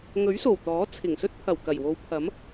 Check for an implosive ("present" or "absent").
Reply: absent